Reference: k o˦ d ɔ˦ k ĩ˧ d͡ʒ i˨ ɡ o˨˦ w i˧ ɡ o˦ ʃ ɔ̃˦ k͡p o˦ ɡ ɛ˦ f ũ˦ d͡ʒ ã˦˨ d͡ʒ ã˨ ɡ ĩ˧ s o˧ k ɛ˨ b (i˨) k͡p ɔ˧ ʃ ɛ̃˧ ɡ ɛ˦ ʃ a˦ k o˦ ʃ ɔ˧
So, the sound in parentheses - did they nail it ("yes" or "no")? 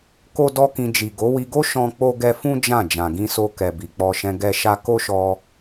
yes